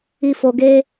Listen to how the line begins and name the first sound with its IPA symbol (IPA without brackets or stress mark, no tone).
i